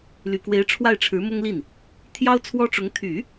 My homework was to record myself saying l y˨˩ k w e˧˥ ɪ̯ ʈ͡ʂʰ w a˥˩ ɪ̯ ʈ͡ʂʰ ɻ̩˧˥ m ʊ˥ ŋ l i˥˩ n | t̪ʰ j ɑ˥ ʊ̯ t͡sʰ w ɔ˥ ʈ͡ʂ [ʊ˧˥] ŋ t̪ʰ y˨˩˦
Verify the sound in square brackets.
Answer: correct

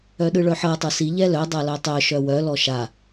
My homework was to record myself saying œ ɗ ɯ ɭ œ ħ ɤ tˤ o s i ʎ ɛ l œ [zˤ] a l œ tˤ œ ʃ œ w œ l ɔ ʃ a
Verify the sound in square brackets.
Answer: incorrect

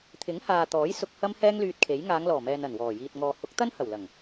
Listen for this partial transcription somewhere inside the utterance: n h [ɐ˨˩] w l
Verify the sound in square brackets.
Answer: correct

